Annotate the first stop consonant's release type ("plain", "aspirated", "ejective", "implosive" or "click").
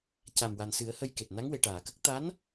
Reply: plain